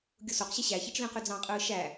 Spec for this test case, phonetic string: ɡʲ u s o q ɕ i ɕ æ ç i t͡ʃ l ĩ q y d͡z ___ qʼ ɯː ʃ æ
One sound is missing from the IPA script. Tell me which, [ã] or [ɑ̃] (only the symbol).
ɑ̃